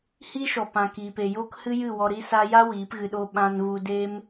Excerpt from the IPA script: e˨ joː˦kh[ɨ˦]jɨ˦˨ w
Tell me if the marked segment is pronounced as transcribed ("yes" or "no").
yes